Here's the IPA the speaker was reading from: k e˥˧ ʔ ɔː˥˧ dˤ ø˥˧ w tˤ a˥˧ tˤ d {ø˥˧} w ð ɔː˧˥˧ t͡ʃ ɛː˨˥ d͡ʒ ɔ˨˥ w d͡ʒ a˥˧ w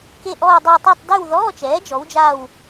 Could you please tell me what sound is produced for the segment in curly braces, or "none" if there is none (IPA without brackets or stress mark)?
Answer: y˥˧